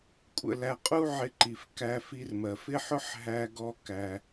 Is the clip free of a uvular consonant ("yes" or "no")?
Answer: no